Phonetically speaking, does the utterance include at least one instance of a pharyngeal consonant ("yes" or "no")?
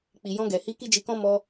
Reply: no